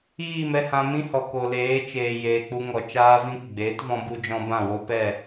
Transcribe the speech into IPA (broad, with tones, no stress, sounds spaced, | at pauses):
iː˦˨ m ɛ˧ h ã˧ m ĩ˦ h ɔ˨ k o˨ l eː˨˦ t͡ʃ eː˨ j eː˨ k͡p u˧ ŋ ɔ˨ t͡ʃ aː˧ v ĩ˧ k ɡ͡b eː˨˦ t v ɔ̃˧ b u˧ d͡ʒ ɔ̃˧ b ã˦˨ w o˦ p ɛ˦˨